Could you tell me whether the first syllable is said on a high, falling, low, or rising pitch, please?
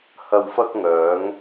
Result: low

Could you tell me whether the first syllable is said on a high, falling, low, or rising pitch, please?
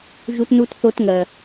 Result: high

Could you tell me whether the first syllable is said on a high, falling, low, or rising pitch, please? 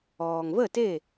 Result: low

